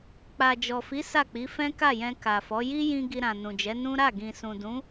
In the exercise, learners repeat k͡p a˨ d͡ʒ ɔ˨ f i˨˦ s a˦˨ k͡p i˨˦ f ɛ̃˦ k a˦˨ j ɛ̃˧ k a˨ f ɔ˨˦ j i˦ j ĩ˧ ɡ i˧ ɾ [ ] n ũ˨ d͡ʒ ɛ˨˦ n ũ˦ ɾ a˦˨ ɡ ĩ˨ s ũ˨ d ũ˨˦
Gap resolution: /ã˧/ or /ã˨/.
ã˨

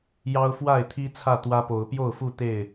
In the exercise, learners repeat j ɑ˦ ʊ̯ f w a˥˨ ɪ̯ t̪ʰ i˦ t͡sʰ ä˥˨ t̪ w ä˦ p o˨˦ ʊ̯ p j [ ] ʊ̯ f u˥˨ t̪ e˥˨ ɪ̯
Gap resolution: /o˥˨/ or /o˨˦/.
o˥˨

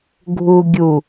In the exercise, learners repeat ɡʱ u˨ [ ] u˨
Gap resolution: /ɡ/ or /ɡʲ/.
ɡʲ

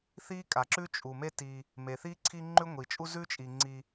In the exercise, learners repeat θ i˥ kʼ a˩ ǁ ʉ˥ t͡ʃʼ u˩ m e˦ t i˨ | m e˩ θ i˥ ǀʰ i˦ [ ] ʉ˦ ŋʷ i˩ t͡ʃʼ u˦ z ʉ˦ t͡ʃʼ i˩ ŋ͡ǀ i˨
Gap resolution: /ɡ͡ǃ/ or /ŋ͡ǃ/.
ŋ͡ǃ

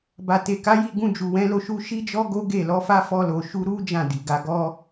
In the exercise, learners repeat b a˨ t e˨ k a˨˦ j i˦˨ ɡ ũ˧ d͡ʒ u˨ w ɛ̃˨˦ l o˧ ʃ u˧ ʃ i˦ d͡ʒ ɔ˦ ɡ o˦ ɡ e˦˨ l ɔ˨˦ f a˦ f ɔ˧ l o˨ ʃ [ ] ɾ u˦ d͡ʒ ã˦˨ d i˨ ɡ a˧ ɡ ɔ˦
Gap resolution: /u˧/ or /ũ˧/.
u˧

